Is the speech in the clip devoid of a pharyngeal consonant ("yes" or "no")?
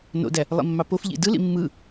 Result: yes